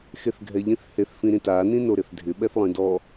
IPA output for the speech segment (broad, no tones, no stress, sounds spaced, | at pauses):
x e θ ɡʱ ɛ ʎ ĩ θ h e θ f ĩ ɾ ĩ t a n ĩ n o ɾ ɪ θ dʱ ɪ ɓ ɛ θ lˠ ĩ d ɔ